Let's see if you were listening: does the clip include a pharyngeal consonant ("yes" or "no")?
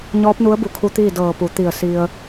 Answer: no